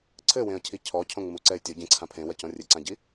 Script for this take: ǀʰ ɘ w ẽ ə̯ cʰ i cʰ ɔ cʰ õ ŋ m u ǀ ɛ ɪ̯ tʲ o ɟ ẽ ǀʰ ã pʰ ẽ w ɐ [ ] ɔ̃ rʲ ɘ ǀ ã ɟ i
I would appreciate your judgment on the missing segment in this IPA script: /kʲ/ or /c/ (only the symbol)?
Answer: c